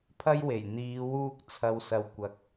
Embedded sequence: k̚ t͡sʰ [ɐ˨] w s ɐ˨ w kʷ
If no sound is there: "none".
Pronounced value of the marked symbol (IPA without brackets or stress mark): ɐ˨